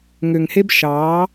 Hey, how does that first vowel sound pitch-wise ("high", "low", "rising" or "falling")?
low